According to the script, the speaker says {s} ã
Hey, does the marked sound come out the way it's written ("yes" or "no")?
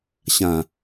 no